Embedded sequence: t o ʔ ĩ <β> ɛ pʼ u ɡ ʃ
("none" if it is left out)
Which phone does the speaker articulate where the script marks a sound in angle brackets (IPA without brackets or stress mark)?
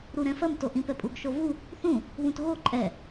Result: p